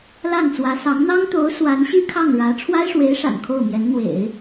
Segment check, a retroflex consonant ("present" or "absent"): present